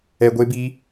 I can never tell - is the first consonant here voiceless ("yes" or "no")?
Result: no